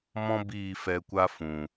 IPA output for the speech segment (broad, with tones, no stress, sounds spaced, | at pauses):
m ɔ̃˦ b iː˦˨ f ɛ˧ kʷ a˦ f ũ˨